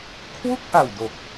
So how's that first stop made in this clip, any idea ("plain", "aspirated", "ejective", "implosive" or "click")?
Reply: aspirated